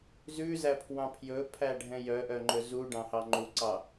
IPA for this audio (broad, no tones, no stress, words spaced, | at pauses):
zʉzæpʰwɑ̃ pʰjɵpʰæɖʱɛ̃ jœʔœŋ͡ǃɵ zuɖɑ̃hɑ ŋ͡ǃuǀɑ